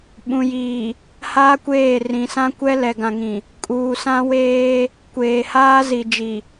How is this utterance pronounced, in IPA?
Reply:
ɓ ũ˨ j iː˨ | h aː˦ kʷ eː˦˨ r ĩ˨ s ã˦ kʷ ɛ˦ l ɛ˨ ɡ ã˨ ŋ ĩ˨ | kʼ uː˨ s ã˦ w eː˦ | kʷ eː˨ h aː˦ z i˨ d͡ʒ i˨

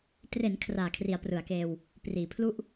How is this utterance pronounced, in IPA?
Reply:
t r e˩˦ n kʰ r aː˨˩ kʰ r i˩˦ a̯ p r ɯ˩˦ a̯ k eː˧ w | p r iː˩˦ pʰ l u˥˩ ʔ

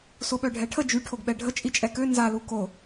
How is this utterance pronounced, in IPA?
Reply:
s o ɓ œ ɖʱ ɛ ʈʰ ə d͡ʒ y ʈʰ o ɡ ɓ ɛ ɖʱ ə t͡ʃʼ i t͡ʃʼ ɛ k ø n z a l u k o

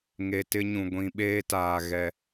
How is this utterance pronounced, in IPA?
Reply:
ŋ e˨ t ɪ˦ ɲ ũ˨ ɡʷ ĩ˨ ɓ eː˦ t aː˨ ɣ ɛ˦

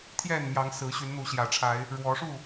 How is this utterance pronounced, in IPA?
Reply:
t̪ʰ j ɛ˥˨ n m j ɑ˨˦ ŋ s ɹ̩˨˦ ɕ y˨˦ n n̪ u˨˦ ɕ j ä˨˩ ʈ͡ʂʰ a˨˦ ɪ̯ | ɻ w ɔ˨˦ ʂ u˥˨

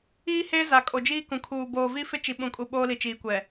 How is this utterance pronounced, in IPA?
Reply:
iː˦ h eː˦ z a˨ kʼ o˨ d͡ʒ iː˦ k ũ˨ kʰ uː˨ b oː˨ v i˦ f ɪ˦ t͡ʃ i˨ ɓ ũ˨ kʼ u˨ ɓ oː˦ l i˨ t͡ʃ iː˨ kʷ ɛ˨

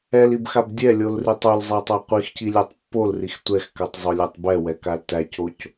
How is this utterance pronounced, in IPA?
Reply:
ɛ l i b x a b dʲ ɛ lʲ o l r i tˤ o l zˤ æ tˤ æ qʷ i x c i lʲ æ tˤ pː o l r i x tʷ ɛ x k a tˤ zˤ o lʲ a tˤ b ɛ w ɛ k a l t æ c o c

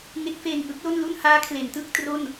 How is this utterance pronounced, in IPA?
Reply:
ŋ e˦˥ k̚ f eː˧ ŋ ʔ ɯ˦˥ k̚ l o˥˩ n l u˥˩ n h aː˦˥ kʰ l e˩˦ n t ɯ˥˩ k̚ t r o˥˩ n

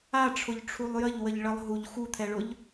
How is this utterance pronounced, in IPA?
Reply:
a ʈ͡ʂʰ ʊ ʎ ʈ͡ʂʰ u lˠ j ə ʎ w ə ʎ ɭ ə lˠ ɦ u ʎ x u t̪ʰ ɛ ɭ ʊ ʎ

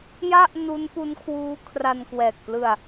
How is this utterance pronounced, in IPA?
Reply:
j a˥˩ ʔ n u˦˥ n p u˦˥ n kʰ w uː˦˥ kʰ r a˧ n k w ɛː˨˩ k̚ p l ɯ˧ a̯

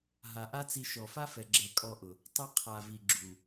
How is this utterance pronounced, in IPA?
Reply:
ɦ a˨ ʔ a˦ t͡s i˧ ʃ ɔ˨ f a˦ f ɛ˨ ɡ͡ǁ ɛ˨ kʼ ɔ˧ ʔ ʊ˨ | tˤ ɛ˧ qʰ a˨ v i˨ ɡ͡ǁ u˨

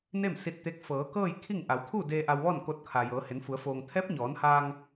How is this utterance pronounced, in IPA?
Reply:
n e˥˨ m s i˧ t̚ t̪ e˧˥ k̚ f ɤː˩˧ k ɤː˥˨ j kʰ i˥˨ ŋ ʔ a˩˧ w t̪ʰ u˥˨ d eː˧ ʔ a˧ w ʋ ɔː˥˨ n k o˧ t̚ kʰ aː˩ j ɤː˩˧ h e˩˧ n f u˩˧ ə̯ f oː˩ ŋ t̪ʰ ɛː˧˥ p̚ ɲ ɔː˩˧ n h aː˧ ŋ

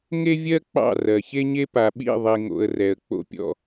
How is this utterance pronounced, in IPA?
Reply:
ŋ e˦ vʲ ɜ˦ k͡p ɑ̰˦˨ r ɜ˨ ç e˦ ɲ e˦ p a˨ ɓ ḭ˦˨ ðˤ i˨ ŋ o̰˨ ə̯ r ɛ˨ ə̯ k͡p o̰˦ pʲ ɔ̰˦

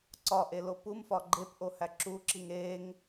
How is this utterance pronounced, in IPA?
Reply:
ǀ ɒ ʔ e l o p u m f ɒ ɡ͡ǃ e p ʔ o h æ ǁ u ǁ i ŋ e ŋ

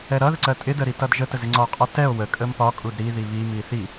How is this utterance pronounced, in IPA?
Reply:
ɛ ɾ ʌ ð ə ǀ ɜ tʼ ɪ d ə ɾ i t ʌ d ʒ ə t ə z ɪ ŋ͡ǀ ɒ qʼ ʌ t ɛ o̯ w ə kʼ ə m p ɒ kʼ u d ɾ i ð i β i m i θ i

